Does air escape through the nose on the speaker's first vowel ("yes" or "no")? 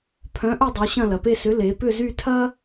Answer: yes